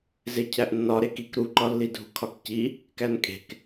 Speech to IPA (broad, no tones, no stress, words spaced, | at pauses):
zecʰæʔnːɒ ɾekik ɾuǃɒlːi dʱṳkʰɒkci | kænkʼe̤k